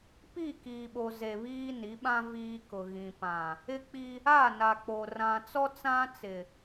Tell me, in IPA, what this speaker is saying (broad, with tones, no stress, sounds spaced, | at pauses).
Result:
p i˦˨ k iː˨ ɓ o˨ z e˨ β iː˦ n i˨˦ ɓ ã˦ v iː˦ k ʊ˨ ɣ ĩ˨ p ã˨ | ɪ˦ k͡p i˦ | a˦˨ n a˨ k͡p o˨ r ã˨ t͡s ɔ˦ t͡s ã˦ t͡s ɪ˨